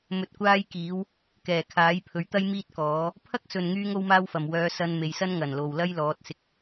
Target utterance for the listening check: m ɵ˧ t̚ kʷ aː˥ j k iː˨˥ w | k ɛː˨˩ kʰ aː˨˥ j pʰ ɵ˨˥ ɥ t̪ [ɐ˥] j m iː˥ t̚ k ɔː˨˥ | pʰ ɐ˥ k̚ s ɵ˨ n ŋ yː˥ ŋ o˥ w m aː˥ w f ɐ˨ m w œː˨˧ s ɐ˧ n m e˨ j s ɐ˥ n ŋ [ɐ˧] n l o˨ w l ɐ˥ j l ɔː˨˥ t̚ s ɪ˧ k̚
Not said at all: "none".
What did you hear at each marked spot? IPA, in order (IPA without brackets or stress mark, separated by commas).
ɐ˥, ɐ˨˩